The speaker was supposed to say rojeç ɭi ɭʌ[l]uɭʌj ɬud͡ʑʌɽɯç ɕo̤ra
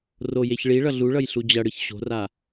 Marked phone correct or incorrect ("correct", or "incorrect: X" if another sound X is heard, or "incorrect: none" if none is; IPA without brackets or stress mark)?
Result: incorrect: ɮ